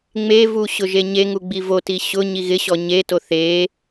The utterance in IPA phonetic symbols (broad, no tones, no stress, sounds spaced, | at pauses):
ŋ͡m e v u ɕ ʊ ʒ e ɲ e ŋ u ɡ͡b i v o t i ɕ ʊ ɲ i ɣ ɪ ɕ ɔ ɲ e t o θ e